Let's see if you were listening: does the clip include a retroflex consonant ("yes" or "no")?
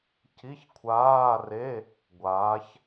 no